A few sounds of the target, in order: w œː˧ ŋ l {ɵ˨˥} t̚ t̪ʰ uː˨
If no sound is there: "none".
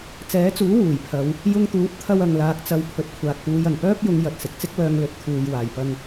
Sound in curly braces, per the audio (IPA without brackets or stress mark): ɵ˨˥